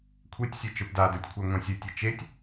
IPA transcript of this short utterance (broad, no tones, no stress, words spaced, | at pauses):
kʷʰetʲ sʲɜt͡ʃə˞pdadə˞tʲ kʷʰɜŋʷãsʲɜtʲi t͡ʃetʲ